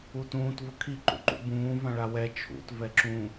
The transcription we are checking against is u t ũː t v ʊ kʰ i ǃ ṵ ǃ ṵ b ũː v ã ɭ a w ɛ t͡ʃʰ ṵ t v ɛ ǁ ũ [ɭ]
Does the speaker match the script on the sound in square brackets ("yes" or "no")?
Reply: no